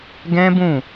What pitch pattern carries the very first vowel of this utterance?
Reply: high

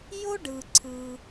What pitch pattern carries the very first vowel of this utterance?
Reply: high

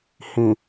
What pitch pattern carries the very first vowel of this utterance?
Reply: low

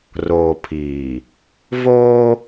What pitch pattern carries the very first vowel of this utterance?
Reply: low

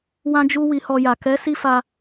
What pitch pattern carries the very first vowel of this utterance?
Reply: high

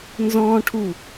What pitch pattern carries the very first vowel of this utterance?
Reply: high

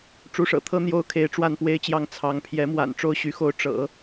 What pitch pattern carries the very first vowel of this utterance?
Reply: rising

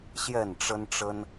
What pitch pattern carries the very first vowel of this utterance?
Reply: falling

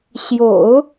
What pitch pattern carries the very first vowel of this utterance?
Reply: low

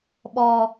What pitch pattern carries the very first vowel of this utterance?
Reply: low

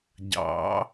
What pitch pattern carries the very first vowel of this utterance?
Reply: rising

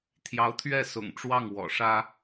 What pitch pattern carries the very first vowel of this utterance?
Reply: rising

